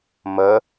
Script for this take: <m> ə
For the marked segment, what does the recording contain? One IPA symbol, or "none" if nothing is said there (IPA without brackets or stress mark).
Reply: m